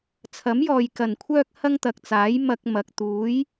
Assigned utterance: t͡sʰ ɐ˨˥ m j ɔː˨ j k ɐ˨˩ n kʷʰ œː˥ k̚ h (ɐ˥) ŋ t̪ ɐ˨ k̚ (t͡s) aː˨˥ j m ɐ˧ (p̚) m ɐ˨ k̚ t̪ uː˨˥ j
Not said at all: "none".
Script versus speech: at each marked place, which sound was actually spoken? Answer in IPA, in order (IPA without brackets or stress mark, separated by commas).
ɐ˥, t͡s, k̚